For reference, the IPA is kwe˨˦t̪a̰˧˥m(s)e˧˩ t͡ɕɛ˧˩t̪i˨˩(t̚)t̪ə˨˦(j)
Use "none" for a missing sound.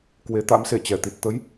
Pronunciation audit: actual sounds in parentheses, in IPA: s, t̚, j

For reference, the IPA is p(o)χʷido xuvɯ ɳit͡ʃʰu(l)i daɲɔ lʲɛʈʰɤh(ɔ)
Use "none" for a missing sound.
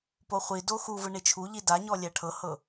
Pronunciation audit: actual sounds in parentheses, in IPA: o, ʎ, ɤ

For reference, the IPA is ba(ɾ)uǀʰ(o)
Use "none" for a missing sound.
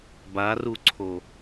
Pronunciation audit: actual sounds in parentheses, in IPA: r, o

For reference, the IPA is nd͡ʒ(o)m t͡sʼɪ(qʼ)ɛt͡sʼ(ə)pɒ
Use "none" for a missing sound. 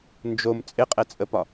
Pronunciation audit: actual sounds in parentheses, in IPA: o, qʼ, ə

